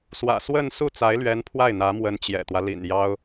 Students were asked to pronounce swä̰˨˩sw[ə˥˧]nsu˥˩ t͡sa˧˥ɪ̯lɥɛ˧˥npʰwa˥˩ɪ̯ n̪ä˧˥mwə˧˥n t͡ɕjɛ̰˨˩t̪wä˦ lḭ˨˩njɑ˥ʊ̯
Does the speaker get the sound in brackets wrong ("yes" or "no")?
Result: no